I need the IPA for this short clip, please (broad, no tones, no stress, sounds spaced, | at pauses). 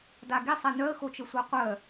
d a ɡ i sˤ ɛ n œ ə̯ x o t͡ʃ ə sʷ a qʷ œ